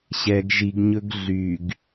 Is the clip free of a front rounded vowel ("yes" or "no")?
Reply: no